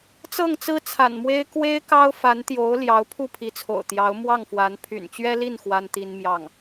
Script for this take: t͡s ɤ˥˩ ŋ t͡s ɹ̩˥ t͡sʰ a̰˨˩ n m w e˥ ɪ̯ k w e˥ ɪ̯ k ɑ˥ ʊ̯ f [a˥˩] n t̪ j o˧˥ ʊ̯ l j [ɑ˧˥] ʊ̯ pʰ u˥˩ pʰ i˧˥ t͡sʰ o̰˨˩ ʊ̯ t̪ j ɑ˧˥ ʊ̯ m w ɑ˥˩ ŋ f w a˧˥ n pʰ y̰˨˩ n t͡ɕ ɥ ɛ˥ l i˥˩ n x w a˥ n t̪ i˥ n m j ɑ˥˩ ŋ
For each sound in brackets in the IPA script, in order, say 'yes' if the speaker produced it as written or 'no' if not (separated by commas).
no, yes